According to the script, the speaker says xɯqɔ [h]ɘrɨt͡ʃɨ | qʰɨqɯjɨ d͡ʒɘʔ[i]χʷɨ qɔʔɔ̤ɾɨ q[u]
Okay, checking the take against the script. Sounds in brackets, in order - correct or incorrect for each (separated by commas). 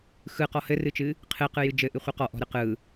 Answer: correct, incorrect, incorrect